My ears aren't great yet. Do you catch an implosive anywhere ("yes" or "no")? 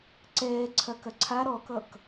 no